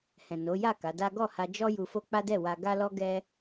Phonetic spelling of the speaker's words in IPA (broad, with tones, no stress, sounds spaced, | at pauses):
h ɛ̃˨ n o˨˦ j a˦˨ k a˨˦ d a˦ ɡ ɔ˦˨ h a˧ d͡ʒ ɔ˦ j u˧ f o˦ k͡p a˦ d ɛ˦˨ w a˧ ɡ a˦ l ɔ˦ ɡ ɛ˦